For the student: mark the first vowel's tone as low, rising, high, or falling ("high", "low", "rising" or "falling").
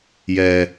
low